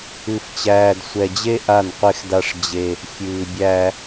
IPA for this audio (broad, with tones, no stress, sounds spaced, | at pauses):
ɨ˨ f t͡ɕ æː˨ d sʷ ɛ˨ d͡ʑ e˦ ʔ a˦˨ n qʷ e˦ x d a˦ ʂ d͡ʑ e˦ | fʲ ɨː˨ bʲ æ˦